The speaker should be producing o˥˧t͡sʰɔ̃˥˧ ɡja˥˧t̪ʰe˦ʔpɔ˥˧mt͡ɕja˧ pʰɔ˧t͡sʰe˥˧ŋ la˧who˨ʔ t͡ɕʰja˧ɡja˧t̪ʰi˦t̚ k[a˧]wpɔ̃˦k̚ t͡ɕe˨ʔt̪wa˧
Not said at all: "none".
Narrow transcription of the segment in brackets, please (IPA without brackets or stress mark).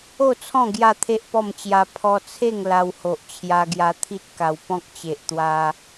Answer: a˧